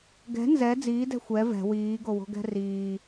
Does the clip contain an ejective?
no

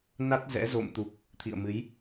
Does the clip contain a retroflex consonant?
no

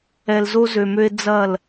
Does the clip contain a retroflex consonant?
no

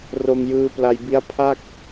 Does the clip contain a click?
no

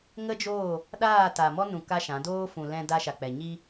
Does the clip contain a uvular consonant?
no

